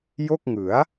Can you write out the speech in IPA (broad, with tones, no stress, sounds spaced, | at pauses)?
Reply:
j o˥˩ k̚ ŋ ɯ˩˦ a̯